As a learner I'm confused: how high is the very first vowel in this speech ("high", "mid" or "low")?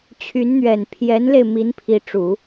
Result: high